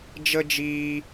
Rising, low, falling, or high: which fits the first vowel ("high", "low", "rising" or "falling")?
high